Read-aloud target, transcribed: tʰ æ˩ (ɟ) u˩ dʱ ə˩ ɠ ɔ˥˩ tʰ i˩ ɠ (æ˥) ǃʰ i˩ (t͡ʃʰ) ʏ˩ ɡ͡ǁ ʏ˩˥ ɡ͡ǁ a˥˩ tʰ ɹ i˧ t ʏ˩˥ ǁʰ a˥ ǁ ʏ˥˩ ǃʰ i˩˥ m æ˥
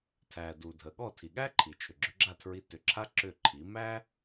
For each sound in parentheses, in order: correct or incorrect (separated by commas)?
incorrect, correct, correct